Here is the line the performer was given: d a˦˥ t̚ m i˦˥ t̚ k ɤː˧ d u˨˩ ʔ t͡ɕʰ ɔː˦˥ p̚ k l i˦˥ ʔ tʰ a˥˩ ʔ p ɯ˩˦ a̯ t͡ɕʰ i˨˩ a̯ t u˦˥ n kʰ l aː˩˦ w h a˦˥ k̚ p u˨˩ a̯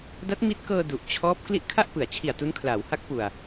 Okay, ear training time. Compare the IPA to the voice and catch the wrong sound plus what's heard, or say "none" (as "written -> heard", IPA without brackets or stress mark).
tʰ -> kʰ